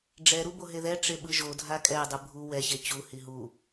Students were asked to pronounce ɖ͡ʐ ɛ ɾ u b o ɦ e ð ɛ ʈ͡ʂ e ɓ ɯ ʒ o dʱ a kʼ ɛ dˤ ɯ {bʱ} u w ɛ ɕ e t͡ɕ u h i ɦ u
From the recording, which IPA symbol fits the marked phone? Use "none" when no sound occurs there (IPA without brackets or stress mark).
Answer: bʱ